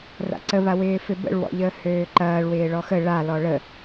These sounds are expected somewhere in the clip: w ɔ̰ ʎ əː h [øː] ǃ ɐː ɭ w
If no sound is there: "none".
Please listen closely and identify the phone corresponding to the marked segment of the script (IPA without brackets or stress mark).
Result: øː